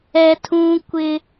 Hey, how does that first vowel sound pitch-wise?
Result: high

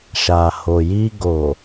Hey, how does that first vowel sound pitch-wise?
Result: low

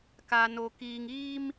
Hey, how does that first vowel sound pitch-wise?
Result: low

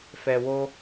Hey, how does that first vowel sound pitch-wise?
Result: low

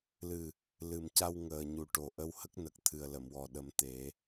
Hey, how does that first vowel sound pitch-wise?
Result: low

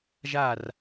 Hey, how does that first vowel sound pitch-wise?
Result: falling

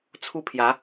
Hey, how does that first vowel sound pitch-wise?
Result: falling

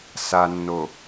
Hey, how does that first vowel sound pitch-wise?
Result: low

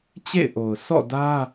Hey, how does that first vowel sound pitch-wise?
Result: falling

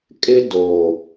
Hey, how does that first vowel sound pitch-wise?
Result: high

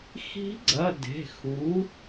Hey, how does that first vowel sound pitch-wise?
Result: rising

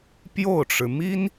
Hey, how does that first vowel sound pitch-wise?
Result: falling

